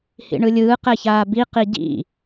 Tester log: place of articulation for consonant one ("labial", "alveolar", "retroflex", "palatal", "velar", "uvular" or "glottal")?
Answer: glottal